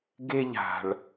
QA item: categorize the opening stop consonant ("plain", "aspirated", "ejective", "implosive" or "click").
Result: plain